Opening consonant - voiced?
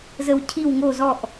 yes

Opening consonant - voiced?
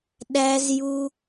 yes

